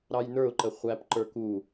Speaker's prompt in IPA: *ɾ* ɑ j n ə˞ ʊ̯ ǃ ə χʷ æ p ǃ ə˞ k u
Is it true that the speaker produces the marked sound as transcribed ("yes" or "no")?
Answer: yes